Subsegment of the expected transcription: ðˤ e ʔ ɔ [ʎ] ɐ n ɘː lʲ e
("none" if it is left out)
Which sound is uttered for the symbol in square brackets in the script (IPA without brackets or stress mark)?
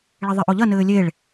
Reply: ʎ